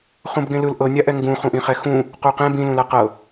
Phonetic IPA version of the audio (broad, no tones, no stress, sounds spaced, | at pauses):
χ ũ b ɡ ẽ l ɯ l ʔ ɤ nʲ a ʔ ɛ ŋ ɡ ũ χ ũ ʔ ĩ χ ɛ x ũ | q u q ɛ̃ b ĩ l ũ l a q ɤ